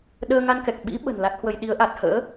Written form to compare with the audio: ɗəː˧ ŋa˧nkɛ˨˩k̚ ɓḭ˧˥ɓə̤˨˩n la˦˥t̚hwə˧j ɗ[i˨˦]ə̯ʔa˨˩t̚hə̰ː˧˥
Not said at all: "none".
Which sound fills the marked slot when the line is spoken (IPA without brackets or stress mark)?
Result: i˨˦